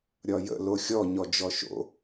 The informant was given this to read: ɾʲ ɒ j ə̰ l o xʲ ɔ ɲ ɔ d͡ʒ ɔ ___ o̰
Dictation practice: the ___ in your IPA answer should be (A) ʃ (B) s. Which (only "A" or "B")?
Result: A